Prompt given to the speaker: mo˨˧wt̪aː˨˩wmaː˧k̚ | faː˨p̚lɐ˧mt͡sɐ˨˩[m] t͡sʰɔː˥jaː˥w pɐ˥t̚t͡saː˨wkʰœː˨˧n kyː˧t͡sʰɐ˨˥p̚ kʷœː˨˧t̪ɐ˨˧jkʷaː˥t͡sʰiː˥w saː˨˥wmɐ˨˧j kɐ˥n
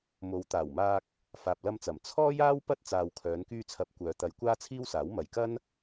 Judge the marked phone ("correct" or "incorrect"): correct